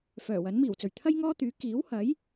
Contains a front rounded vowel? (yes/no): yes